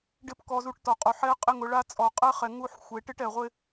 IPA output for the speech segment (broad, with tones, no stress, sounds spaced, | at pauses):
ɖ ɪ˦ p k ɔ˧ z u˧ ʈ t ɔ˨ qʼ o˨ ħ ɛ˦ qʼ ɪ˦ ŋ ʊ˨˦ ɭ a˦ t͡sʼ ɔ˨ qʼ ɛ˦ χ ɛ˨ ŋ u˧ ħ xʷ e˨ ʈ ɪ˦ ʈ ɛ˨ ʁʷ ɪ˦